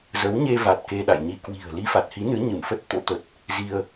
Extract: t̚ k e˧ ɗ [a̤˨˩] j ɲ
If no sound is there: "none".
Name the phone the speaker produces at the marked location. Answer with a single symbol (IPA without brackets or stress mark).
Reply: a̰˧˨